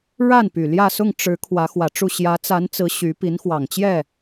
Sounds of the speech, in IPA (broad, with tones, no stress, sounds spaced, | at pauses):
ɻ a˥˩ n p y˨˩ l j ä˥˧ s ʊ˥˩ ŋ ʈ͡ʂ ɻ̩˧˥ kʰ w ä˧˥ x w ä˨˩ ʈ͡ʂ u˥˩ ɕ j ä˧˥ t͡s a˧˥ n t͡s ɹ̩˧˥ ɕ y˧˥ p i˧˥ n x w ɑ˨˩ ŋ t͡ɕ j ɛ˥˩